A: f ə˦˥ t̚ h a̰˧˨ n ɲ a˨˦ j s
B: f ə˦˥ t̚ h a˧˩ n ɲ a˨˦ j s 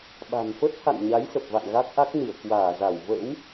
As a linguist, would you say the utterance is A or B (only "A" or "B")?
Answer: A